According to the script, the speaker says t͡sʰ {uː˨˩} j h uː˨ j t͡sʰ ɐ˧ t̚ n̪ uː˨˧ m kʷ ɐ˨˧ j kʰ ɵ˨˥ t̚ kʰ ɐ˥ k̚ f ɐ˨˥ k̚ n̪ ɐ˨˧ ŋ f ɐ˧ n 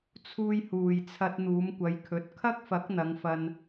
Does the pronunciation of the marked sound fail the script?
yes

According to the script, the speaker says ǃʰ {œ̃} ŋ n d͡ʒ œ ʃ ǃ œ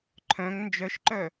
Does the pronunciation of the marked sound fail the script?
no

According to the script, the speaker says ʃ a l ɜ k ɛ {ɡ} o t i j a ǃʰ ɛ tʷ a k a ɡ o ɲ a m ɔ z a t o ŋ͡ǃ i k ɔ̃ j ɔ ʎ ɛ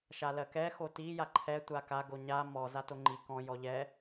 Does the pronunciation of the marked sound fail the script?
yes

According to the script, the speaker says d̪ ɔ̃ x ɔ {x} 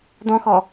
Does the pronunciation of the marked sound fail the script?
yes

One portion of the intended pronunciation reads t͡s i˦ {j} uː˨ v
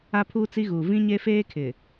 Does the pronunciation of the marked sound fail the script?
yes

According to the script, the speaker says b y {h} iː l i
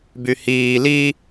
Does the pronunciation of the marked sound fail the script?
no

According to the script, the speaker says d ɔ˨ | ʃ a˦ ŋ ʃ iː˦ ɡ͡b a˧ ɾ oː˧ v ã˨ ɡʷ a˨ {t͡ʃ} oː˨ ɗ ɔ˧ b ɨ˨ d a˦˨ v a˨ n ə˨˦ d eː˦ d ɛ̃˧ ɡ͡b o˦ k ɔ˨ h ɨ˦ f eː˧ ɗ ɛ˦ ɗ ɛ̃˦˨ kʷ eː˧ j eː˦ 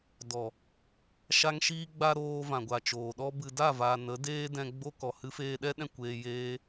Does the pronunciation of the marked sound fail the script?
no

